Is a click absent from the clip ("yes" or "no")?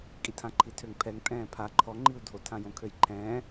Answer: no